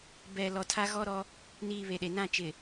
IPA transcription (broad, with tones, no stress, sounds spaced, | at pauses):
b ɛ˨ l ɔ˨ tʰ a˦ ɣ ɔ˦ ɾ ɔ˦ | n iː˨ β e˨ ɗ e˨ n ã˦˨ t͡ʃ ɪ˨